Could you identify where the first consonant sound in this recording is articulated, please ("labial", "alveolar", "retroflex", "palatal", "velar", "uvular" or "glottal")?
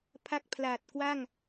labial